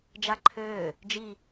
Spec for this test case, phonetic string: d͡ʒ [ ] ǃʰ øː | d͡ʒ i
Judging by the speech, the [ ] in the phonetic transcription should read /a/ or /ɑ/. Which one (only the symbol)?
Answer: a